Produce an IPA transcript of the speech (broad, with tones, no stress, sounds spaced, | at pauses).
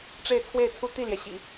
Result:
ʈ͡ʂ e˥˧ ɪ̯ t͡sʰ w e˥˧ ɪ̯ t͡sʰ u˥˧ t̪ i˥˩ l j ɛ˩ ɕ ḭ˨˩˦